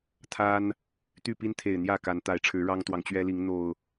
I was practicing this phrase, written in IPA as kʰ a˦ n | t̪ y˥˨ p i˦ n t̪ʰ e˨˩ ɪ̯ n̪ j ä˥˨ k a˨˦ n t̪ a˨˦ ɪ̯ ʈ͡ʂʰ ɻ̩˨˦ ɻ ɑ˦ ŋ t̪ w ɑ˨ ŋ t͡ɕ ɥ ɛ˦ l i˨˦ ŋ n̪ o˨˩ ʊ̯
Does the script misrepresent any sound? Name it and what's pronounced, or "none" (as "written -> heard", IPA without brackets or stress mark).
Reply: kʰ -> t̪ʰ